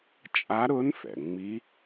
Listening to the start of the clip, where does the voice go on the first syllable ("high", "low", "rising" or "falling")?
rising